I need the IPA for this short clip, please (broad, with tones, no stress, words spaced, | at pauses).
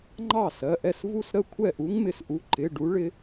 ŋ͡ǃɑ˥˩ sɜ˩˧˩ʔɛ˥˩svu˥˩s ɾə˥˩ kʷʰɛ˥˩ʔu˧˥ŋmɪ˩˧˩sʔu˩˧˩ ǃɪ˩˧˩ ɖu˧˥ɭɪ˧˥